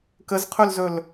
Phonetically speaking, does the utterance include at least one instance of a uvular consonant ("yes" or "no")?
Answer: yes